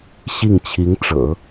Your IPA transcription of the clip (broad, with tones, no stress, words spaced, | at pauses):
ɕi˥˩ŋt͡ɕʰi˧˥ŋʈ͡ʂɤ̰˨˩˦